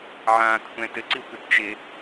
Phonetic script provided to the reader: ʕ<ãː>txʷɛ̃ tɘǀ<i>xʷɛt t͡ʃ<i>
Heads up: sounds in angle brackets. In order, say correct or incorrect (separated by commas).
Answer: correct, correct, incorrect